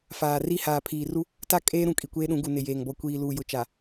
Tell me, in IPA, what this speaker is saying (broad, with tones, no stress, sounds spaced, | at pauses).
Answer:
f aː˨ r i˦ h aː˨ pʰ iː˨ r u˦ | t a˦ kʼ eː˦ ɾ ũ˨ kʼ i˨ kʷ eː˦ ɗ ũ˨˦ ɡ u˨ n ɪ˨ j eː˨ ŋ b ɔ˨ kʷ iː˨ l uː˨ j ʊ˨ t͡ʃ a˨